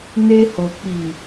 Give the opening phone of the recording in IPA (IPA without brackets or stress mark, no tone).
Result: n